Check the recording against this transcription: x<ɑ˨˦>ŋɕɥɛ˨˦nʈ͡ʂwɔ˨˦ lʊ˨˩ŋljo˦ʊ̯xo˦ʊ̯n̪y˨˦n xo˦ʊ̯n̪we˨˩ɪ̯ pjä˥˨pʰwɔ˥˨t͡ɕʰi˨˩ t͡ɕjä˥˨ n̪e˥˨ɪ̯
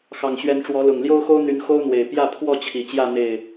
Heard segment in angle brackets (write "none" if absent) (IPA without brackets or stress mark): ɑ˨˩